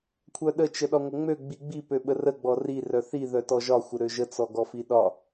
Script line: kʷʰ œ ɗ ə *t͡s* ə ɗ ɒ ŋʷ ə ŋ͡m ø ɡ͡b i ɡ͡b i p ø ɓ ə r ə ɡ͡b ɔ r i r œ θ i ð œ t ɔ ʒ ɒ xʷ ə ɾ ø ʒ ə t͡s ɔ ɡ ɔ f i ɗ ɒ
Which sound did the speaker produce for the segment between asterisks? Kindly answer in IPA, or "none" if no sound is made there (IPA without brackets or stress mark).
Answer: t͡ʃ